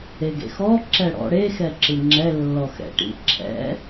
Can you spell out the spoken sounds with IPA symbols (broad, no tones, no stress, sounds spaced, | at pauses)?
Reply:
e ɡ ḛ x ɔ ǁ ɛ ɽ ɔ̰ ɽ e x ɛ ǁ ɯ ŋ͡ǁ ɛ lː ɔ x ɛ̰ ʈ ḭ ǁʰ ɛ̰